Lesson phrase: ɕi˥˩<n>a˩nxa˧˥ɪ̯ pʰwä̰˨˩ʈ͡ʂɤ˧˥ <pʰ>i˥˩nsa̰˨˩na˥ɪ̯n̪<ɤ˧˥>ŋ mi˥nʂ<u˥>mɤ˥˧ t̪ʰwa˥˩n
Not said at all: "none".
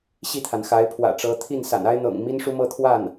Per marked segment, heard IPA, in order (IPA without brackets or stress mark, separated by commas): t̪ʰ, t̪ʰ, ɤ̰˨˩, u˥